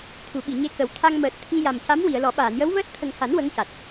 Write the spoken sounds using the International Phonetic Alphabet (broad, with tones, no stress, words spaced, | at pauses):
t̪ʰu˨˩˨ɓi˨˩˨ɲe˧kə˨˩˦w t̪ʰa˧ŋ məː˨˩t̚ t̪ʰi˧ ja˨˩mca˧˥m wi˨˩˨ə̯lɔ˨˩˦ ɓaː˨˩˨njə˧˥wvəː˦˥t̚ t̪ʰə˨˩ŋha˨˩˦n wə˧˥ŋca˨˩t̚